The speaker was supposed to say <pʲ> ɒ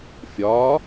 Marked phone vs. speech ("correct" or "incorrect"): incorrect